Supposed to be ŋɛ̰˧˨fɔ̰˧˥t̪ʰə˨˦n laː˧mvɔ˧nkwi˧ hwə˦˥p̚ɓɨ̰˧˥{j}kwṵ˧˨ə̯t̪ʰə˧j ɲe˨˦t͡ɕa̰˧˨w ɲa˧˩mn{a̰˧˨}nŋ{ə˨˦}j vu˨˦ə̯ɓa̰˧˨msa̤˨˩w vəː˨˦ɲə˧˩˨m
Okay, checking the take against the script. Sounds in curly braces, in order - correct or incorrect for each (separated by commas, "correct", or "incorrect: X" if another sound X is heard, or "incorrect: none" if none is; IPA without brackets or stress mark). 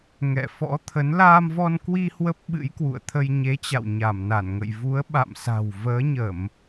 correct, incorrect: a˧˩, incorrect: ə̰˧˨